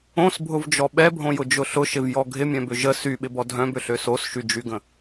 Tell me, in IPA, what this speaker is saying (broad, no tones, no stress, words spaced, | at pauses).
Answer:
õsbʱʊvd͡ʒɔ ɓɛbʱõjʊd͡ʒʊ ɬʊʃɪvjɔ ɡʱɪmʲœ̃bʏ ʒə syɓɪbɔ dʱœ̃bʏɬø sosʃyd͡ʒyɡə̃